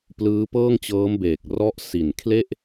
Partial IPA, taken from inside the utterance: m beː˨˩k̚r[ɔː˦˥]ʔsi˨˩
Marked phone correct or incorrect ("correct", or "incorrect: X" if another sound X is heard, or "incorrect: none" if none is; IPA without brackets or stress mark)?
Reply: incorrect: ɔ˦˥